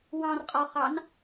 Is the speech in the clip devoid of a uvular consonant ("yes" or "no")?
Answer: no